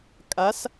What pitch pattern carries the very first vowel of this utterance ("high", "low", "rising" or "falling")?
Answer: rising